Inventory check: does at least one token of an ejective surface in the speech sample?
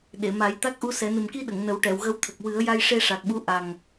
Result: no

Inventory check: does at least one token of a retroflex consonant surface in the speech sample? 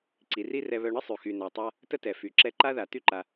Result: yes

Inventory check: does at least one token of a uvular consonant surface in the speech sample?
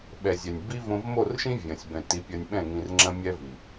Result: no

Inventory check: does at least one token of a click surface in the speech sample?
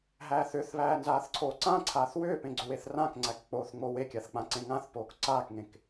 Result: yes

